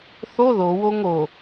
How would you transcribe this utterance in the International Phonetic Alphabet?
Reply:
θ o ð o w o ŋ o

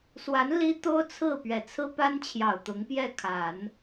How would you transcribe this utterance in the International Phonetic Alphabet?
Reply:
s w a˧˥ n l i˥ t̪ o˥ ʊ̯ t͡sʰ ɹ̩˥˩ p ɥ ɛ˨˩ t͡sʰ ɹ̩˥ p a˥ n t͡ɕʰ j ɑ˨˩ ʊ̯ t̪ ʊ˧˥ ŋ p j ɛ˥˩ kʰ a˨˩˦ n

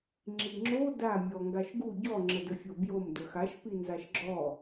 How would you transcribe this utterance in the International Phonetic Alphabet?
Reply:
ŋ͡ǁ i ŋ͡ǁ o d a mʲ ɔ ŋ ɡ a ʃ ɡ u ɟ ɔ ŋ͡ǁ ə d ə fʲ o b j o m d ə x a ʃ p i n z a ʃ ɡ͡ǁ ɔ

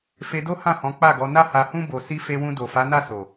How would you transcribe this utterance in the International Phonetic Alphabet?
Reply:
f e˧ d o˦ h ã˦˨ h ɔ̃˨˦ k͡p a˦˨ ɡ ɔ˨˦ n a˦ h a˧ h ũ˦ b o˧ s i˦ f e˧ w ũ˧ d o˨ f a˨˦ n a˦˨ s o˨

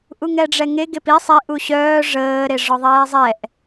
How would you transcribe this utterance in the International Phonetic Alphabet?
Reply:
ʔ u ŋ ɛ ɖ͡ʐ ɛ ŋ e ɡ e p i sˤ e ʔ u ɕ œː ʐ əː ɾ e ʐ ɔ ðˤ ɛː zˤ ɛ ʔ

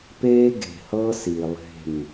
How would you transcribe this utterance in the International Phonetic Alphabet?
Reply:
p eː˦ ɡ e̤˨ h ɤː˦ s i˨ lˠ e̤˦˨ m

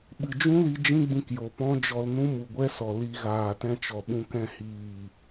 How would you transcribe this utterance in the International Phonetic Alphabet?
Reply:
ɓ ɨ˨ d͡ʒ ũ˦ l i˧ d͡ʒ ĩ˦ ɡ͡b ĩ˧ k j o˨ p ɔ̃˦ d͡ʒ ɔ˧ l n ũ˦ m u˨ ɡʷ ɛ˦ s ɔ˨ l i˧ ɣ aː˨ t ɛ̃˦ t͡ʃ ɔ˨ ɓ ũ˧ k ɛ̃˦˨ h iː˦˨

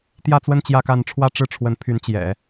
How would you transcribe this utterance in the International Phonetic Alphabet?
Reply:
t̪ j ä˥˧ t͡s w ə˥˧ n t͡ɕ j ä˥˧ k a˥˧ n ʈ͡ʂʰ w ä˥˧ ʈ͡ʂ ɻ̩˥˩ ʈ͡ʂʰ w ə˧˥ n pʰ y˧˥ n t͡ɕ j ɛ̰˨˩˦

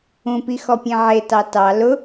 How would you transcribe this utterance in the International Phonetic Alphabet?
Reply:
ũ p i x ɔ pʲ ẽ ʕ e t ɑ t ɑ l ʊ

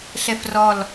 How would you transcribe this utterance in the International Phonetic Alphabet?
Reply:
ɬ ɛ f r ɔ l

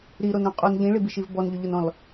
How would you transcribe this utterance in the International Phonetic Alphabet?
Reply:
ɾ i ɾ o n ɾ õ qʼ o n ʎ ĩ ɭ i b i ʃ i v b ɔ n ʎ ʏ ʎ o n ɔ̃ l

